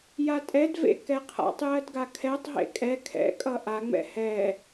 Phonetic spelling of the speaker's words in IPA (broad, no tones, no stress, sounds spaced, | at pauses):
j a tʼ ɛ d v ḛ k ɛ qʰ a̰ tˤ j ɜ d ɡ a kʰ ɛ tˤ ɦ ḛ kʼ ɛ kʰ ɛ̰ kʼ ʌ ʔ a ŋ͡m ɛ̰ h ɛ